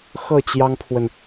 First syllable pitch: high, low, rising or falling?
falling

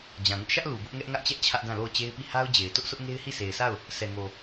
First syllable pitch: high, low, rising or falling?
low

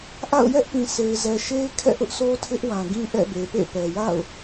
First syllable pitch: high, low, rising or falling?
falling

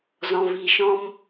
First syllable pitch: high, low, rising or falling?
low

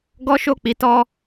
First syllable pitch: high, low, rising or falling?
high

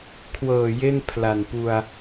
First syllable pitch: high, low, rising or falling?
low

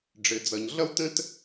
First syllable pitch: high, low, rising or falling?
low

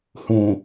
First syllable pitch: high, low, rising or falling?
low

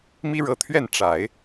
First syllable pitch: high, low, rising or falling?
high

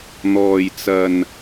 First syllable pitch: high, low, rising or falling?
low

